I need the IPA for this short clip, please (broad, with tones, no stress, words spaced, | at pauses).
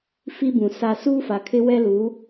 fi˦bũ˨sa˦ suː˦fa˨kʰɪ˦ wɛ˦luː˨˦